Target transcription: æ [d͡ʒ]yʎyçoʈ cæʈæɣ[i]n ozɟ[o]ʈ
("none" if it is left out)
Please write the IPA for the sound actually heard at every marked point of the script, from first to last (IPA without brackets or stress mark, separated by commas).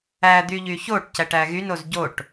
d̪, y, o